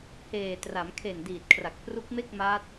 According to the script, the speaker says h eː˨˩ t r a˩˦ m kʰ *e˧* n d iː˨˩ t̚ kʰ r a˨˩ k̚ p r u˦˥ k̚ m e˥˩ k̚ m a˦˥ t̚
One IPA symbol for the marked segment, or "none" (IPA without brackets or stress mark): e˨˩